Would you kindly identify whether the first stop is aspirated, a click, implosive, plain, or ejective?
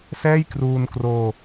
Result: plain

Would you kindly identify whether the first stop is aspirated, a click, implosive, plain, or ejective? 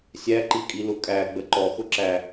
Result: click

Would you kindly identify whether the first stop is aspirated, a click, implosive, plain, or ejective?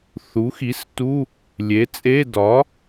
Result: plain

